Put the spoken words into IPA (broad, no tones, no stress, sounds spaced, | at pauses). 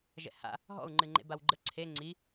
ʒ ɛ̰ h a̰ | ɦ ɔ̰ u̯ ŋ͡ǃ ɨ ŋ͡ǃ ḛ b a w ɡ͡ǃ ə ǀʰ e ŋ͡ǀ i